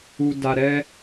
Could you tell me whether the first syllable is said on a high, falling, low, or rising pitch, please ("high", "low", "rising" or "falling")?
low